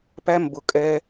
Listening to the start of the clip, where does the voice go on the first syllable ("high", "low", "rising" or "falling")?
high